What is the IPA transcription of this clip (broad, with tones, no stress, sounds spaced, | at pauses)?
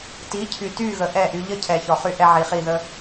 t i˨˦ cʰ y˨ t y˦˨ ɣ ə˨ ʔ ɛ˦˨ ʔ y˧ ʎ ə˦ cʰ ɛ˨ ç ɔ˨ χ y˦ ʔ ɛ˧ ʕ i˨ χ i˦˨ ð ə˦